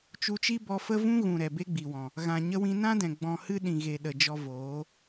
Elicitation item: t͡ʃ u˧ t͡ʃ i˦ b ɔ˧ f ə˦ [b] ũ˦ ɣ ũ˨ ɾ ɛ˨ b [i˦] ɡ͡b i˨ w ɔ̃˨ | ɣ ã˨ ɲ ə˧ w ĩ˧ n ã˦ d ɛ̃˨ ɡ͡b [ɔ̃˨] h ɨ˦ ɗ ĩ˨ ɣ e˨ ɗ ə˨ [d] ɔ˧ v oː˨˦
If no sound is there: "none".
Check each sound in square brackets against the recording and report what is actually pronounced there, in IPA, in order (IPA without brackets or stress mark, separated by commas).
v, e˦, ɔ̃˨, d͡ʒ